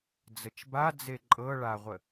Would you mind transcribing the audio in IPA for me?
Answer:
d͡zət͡ʃba d͡zeǃʼɤ ɭaʁʷə

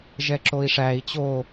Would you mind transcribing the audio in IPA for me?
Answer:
ʒɛǁoi̯ʂæi̯ t͡ɕo

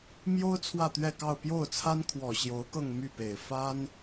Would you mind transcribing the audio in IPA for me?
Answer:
mjo˥ʊ̯ t͡sʰwä˥˧t̪ɥɛ˥˧kɑ˥˧ʊ̯ pjo˥˩ʊ̯t͡sʰa˥nkʰwɔ˨˩ ɕjo˧˥ʊ̯kɤ˥˧ŋ my˥˩pe˨˩ɪ̯ fa˥n

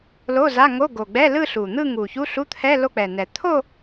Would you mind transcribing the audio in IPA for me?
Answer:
lo˧˥˧za˧˥˧ŋo˧˥˧ ɡo˨˩ɡ͡bɛ˧˥˧ lɯ˥˧ɬu˨˩n̪ɯ˥˧ ŋu˨˩ çu˧˥˧ɬu˧˥˧t̪ʰɛ˧˥˧ lo˥˧k͡pɛ˨˩nɛ˨˩ t̪ʰo˥˧

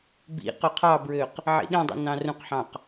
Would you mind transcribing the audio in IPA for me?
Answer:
bḭ qøqʰɑbɹøq | ʕḭɗĩdˤṵ nɑ̃rũqħɑ̃q

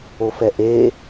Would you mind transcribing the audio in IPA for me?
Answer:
ofɛʔe

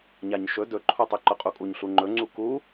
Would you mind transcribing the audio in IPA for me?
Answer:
ɲaɲʃɵ dɵǃʰutˤy ǃʊqʼukʼuɲɬu ŋ͡ǃɵŋ͡ǀu ku

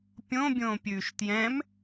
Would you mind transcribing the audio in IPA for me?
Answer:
pʲõbʲõːpʲʉːʃ tjɛ̃m

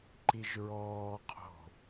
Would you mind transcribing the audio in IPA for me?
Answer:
ǃiʒɹɔː qʰo̤

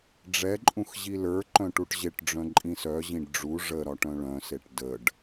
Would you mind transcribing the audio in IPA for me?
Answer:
ɖ͡ʐɛǃʼũx ʑilə˞ǃœ̃ ʈuʈʑeʈɖ͡ʐœ̃ ǃʼĩsœʑĩɖ ɖ͡ʐu ʐə ɾɒʈœ̃ɭœ̃seʈ dəɖ

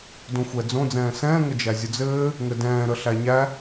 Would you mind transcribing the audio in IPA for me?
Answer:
dõxʷɛd͡zõ d͡zɛ̃ːsɛ̃ː ŋəd͡ʒæzʲʊd͡zɘː | ŋɘdɛ̃ː ɾəɬæɲæ

